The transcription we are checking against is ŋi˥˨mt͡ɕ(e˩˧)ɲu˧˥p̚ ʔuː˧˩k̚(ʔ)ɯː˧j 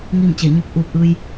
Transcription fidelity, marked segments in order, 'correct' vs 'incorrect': incorrect, correct

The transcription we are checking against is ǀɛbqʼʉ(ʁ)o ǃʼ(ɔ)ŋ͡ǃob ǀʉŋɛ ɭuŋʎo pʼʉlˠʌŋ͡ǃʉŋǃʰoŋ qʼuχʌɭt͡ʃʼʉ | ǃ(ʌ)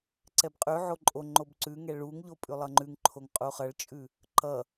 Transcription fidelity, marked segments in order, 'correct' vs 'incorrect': incorrect, incorrect, correct

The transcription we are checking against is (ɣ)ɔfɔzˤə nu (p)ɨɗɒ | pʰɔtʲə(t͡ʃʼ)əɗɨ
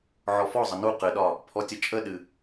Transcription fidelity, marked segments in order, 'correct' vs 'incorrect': incorrect, incorrect, correct

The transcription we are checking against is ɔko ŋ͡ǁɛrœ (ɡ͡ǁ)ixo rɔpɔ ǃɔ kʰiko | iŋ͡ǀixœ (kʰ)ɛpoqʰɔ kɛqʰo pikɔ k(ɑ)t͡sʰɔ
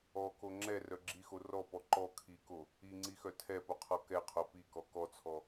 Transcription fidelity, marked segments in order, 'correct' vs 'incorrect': correct, incorrect, incorrect

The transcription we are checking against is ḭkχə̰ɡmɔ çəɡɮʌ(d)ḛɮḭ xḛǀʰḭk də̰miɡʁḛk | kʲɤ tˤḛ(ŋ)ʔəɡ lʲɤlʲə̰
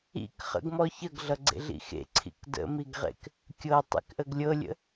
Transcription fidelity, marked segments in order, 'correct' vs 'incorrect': incorrect, incorrect

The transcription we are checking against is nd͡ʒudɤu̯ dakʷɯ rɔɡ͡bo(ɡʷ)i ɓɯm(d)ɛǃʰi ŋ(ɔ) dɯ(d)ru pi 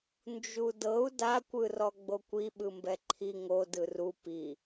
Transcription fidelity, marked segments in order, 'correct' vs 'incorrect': incorrect, incorrect, incorrect, incorrect

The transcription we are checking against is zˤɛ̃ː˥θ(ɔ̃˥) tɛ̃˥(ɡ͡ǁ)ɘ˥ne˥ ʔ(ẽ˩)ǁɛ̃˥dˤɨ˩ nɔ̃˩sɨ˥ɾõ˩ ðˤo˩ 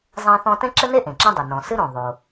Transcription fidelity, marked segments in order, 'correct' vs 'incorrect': correct, incorrect, correct

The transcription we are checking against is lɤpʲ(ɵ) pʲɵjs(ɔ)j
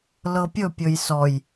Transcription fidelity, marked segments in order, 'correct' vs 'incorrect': correct, correct

